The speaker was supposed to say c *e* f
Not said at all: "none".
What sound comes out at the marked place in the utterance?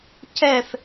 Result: ɛ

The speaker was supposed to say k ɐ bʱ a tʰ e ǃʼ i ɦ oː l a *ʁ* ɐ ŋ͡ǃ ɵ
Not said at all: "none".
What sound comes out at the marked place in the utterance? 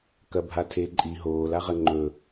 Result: ʁ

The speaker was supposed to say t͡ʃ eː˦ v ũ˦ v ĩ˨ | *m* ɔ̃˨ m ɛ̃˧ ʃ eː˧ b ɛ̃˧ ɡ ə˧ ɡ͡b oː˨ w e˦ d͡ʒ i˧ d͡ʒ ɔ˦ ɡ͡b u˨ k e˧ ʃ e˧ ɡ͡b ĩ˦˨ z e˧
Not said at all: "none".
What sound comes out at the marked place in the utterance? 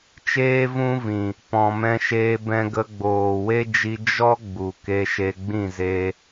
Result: p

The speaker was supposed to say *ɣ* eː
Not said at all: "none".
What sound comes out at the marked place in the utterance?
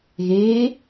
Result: ɣ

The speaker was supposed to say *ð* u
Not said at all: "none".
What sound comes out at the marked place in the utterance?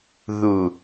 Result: ð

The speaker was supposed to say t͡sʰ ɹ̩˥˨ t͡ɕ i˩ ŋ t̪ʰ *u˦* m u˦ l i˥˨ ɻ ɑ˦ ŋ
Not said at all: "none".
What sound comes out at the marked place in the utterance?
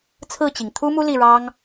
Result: u˦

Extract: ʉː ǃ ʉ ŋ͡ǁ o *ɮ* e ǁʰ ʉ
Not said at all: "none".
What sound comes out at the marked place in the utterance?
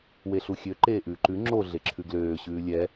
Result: ɮ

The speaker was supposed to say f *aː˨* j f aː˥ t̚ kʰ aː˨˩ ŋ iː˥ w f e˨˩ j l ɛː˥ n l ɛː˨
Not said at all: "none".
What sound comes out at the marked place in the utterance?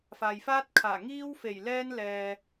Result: aː˨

